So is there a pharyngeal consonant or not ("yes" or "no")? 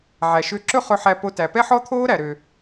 yes